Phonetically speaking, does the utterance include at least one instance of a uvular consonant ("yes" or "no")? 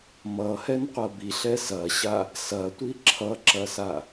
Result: yes